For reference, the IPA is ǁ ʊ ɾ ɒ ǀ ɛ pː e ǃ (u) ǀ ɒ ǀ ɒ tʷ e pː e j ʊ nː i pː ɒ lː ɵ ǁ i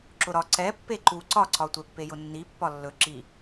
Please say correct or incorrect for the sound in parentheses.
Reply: correct